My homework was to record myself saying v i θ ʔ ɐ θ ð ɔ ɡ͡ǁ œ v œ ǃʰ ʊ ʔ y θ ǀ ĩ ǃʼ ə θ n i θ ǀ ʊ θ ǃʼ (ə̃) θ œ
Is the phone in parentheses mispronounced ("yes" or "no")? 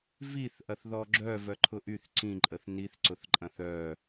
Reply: yes